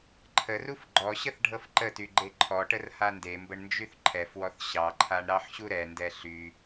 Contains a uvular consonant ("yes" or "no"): no